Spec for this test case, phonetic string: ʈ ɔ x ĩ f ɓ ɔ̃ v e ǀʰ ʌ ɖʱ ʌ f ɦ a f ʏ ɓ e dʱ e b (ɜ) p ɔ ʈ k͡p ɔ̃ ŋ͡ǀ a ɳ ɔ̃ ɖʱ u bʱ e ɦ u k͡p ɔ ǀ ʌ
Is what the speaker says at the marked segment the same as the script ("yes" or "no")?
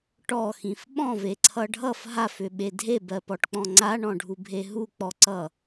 yes